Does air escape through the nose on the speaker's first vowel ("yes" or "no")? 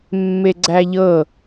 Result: no